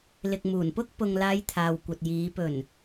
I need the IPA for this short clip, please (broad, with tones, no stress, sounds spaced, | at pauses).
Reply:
l ɪ˨ k̚ m uː˨˩ n p ʊ˥ k̚ p ʊ˨ ŋ l aː˨˧ j t̪ʰ aː˨ w kʷ ɐ˨ t̚ j iː˨˧ p ɵ˨˩ n